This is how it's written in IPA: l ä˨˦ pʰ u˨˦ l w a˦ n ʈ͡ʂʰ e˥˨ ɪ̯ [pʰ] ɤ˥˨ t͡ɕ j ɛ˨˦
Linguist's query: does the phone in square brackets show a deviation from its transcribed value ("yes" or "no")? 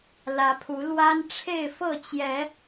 yes